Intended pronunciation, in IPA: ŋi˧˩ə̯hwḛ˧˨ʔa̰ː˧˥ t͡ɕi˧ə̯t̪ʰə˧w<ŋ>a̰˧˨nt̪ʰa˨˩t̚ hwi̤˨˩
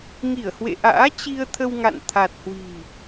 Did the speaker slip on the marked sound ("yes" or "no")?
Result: no